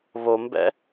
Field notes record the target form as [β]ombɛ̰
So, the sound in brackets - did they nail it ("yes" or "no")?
yes